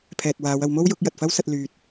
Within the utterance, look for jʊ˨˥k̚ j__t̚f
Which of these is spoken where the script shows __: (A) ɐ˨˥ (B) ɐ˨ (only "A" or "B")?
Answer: B